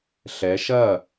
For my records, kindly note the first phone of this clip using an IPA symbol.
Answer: ɬ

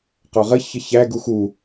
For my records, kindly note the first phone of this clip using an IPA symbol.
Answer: q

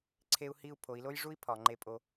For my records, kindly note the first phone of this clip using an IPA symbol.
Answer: ǀʰ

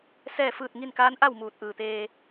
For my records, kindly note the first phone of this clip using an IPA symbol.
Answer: s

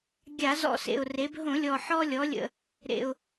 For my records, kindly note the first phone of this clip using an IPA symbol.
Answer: ɡʲ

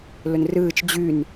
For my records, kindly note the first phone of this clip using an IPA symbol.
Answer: l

